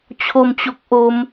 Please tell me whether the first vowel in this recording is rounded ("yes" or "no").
yes